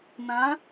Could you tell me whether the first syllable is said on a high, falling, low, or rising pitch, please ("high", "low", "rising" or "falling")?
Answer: rising